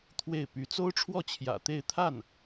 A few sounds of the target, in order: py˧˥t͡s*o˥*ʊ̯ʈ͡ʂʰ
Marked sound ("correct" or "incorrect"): correct